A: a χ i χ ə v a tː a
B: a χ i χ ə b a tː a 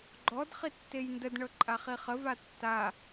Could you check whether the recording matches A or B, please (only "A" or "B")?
A